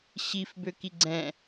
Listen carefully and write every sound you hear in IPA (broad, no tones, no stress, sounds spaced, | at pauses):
ɕ i f b ø k i ɡ͡ǀ ɛ̃